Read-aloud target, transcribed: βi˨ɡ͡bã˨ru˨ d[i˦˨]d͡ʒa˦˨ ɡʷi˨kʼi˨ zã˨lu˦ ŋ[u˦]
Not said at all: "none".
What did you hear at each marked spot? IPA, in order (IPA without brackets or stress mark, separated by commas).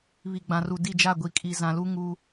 i˦˨, u˦